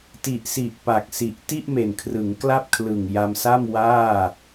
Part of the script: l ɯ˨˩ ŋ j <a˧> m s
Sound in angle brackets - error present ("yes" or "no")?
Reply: no